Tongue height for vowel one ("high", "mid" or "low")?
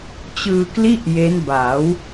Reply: high